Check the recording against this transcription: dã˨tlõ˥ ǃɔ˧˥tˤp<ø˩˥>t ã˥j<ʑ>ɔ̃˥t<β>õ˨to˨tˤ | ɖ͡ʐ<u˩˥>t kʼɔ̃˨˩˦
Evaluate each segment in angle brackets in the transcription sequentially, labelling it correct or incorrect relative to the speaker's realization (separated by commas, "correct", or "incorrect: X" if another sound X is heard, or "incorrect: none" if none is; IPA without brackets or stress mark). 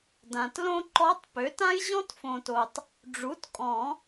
correct, correct, incorrect: f, correct